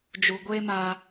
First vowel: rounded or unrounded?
rounded